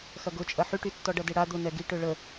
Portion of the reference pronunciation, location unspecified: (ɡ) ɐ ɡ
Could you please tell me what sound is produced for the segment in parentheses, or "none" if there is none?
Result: x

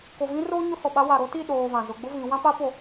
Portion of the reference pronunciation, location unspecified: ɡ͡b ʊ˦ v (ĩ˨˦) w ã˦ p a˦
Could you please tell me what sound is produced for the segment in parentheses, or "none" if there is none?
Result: ĩ˨˦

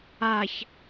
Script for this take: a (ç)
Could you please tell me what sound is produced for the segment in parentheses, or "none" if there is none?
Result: ç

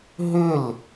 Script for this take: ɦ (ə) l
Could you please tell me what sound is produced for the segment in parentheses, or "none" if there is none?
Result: ʏ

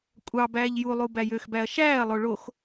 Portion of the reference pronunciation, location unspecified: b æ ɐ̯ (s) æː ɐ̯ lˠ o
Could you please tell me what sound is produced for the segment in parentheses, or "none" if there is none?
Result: ʃ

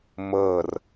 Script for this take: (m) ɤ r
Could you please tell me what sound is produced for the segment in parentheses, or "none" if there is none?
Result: m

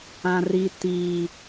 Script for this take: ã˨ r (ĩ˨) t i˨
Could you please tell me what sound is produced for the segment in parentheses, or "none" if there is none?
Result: i˨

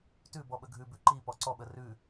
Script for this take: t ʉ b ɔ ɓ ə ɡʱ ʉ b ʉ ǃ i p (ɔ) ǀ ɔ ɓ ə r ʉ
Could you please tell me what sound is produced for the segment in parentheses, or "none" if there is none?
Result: ɔ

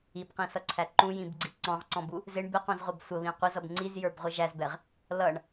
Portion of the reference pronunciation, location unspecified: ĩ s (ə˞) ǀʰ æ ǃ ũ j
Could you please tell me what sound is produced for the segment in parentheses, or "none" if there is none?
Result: ʌ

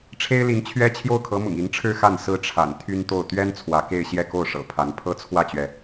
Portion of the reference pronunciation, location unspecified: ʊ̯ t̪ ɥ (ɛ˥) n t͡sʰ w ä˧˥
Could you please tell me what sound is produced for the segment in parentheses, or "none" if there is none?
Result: ɛ˥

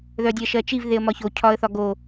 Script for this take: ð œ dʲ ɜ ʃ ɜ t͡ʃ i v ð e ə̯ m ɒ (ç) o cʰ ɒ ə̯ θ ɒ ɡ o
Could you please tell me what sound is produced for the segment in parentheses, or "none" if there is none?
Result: ç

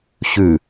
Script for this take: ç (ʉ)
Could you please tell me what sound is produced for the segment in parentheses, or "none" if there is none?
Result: ʉ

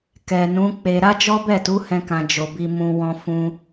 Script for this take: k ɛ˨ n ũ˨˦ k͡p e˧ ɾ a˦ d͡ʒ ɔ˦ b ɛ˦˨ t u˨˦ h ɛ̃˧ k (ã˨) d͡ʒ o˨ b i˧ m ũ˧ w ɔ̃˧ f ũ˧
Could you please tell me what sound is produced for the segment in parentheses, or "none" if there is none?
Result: ã˨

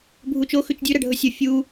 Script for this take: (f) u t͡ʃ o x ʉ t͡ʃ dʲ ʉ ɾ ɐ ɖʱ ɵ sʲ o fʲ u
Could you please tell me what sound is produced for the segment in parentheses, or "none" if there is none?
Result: bʱ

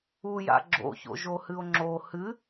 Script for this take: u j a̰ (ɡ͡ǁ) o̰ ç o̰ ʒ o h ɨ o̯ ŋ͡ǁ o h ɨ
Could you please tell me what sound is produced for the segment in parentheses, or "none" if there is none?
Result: ɡ͡ǁ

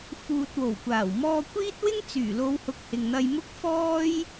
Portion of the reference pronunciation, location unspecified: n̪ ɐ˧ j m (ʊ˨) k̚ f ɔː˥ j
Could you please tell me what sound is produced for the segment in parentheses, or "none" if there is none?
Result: ʊ˥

